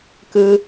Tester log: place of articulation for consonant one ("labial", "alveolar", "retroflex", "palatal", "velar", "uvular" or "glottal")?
velar